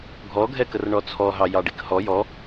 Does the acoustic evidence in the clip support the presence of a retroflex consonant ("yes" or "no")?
yes